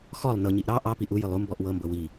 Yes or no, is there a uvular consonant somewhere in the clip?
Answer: no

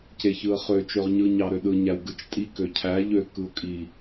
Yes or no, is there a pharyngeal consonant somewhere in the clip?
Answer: no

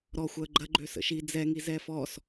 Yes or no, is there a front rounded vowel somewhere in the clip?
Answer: yes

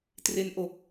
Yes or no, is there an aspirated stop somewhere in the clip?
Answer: no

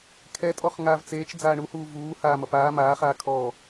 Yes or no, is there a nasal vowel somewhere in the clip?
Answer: no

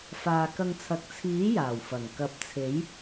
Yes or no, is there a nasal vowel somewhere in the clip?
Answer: no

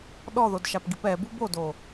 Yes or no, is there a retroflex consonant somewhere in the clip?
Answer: no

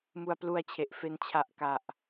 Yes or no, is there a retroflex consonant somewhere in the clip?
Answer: no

